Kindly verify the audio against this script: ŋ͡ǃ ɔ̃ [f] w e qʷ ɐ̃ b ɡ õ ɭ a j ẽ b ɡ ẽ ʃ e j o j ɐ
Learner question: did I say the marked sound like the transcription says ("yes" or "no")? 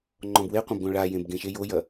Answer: no